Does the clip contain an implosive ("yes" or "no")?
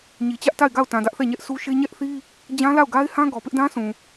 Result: no